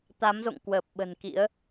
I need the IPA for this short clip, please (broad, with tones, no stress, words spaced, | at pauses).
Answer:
t̪a˨˦mzo̰˧˨ŋ kwəː˨˩p̚ ɓə̤˨˩nkḭ˧˥ə̯